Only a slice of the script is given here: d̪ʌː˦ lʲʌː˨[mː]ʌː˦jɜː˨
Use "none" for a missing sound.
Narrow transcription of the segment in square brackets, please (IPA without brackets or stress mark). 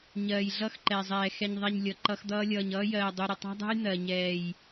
ɲ